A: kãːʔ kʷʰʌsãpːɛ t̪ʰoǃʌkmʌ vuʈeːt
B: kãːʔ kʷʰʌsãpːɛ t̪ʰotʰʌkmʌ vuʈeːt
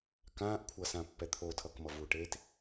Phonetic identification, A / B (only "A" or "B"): B